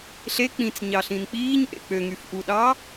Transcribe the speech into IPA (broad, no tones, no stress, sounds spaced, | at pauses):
ɬ e k͡p ĩ t͡s ɲ ɑ ɬ ĩ n k͡p iː ɲ ʔ ḛ k͡p ø ŋ y f ʔ u ɗ ɑ